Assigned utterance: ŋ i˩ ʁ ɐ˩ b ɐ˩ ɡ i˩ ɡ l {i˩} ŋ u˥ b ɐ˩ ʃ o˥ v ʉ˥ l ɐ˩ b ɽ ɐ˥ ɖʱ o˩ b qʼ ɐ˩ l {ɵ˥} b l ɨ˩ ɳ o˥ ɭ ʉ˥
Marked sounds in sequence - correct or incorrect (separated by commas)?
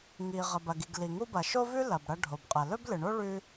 correct, correct